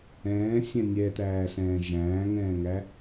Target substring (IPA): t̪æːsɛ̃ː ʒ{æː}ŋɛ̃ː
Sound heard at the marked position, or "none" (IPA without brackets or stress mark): æ̃ː